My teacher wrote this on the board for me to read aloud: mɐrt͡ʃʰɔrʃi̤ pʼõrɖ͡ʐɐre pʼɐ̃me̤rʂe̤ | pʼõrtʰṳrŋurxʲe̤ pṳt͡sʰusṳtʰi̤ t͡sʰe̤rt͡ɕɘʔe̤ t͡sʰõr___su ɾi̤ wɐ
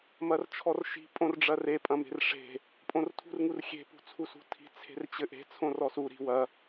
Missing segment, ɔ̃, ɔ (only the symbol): ɔ